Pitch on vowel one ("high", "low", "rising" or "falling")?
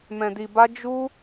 low